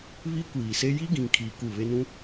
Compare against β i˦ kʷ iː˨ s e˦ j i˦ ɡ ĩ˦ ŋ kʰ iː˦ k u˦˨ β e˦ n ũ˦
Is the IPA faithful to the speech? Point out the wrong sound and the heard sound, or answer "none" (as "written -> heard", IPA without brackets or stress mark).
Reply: none